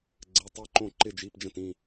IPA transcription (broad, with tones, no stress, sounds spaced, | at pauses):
ɡ͡ǀ ɘ˧˥˧ tˤ i˥˧ ǃ õ˥˧ ǃ ɪ˥˧ d͡ʒ i˧˥˧ p d͡ʒ ə̃˥˧ t ĩ˥˧